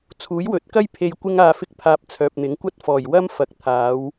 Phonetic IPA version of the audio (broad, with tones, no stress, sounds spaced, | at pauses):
t͡sʰ uː˨˥ j w ɵ˨˥ t̚ k ɐ˥ j pʰ e˨ j kʷ ɪ˧ ŋ aː˨ f ɪ˧ k̚ pʰ aː˧ p̚ t͡sʰ œː˨ p̚ n̪ ɪ˨˥ ŋ kʷ ɐ˥ t̚ f ɔː˨˩ j w ɐ˥ m f ɐ˨˥ k̚ t̪ʰ aː˨˧ w